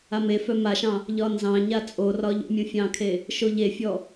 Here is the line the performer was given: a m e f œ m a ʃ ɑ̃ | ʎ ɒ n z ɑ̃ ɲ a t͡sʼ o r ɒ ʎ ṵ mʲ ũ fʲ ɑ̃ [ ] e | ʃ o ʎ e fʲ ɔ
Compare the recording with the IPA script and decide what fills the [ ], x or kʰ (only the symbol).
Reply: kʰ